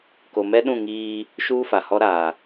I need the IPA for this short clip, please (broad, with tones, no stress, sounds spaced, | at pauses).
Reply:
k o˨ m ɛ˦ ɗ ũ˦˨ ŋ iː˦ | ʃ uː˦ f a˨ h ɔ˦ ɾ aː˨